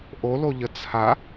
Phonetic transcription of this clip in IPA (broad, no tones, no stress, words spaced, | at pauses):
ʔoloʎə t͡sʰa